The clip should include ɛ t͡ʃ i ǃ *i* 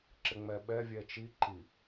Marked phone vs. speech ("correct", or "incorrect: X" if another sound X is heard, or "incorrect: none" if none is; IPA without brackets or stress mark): correct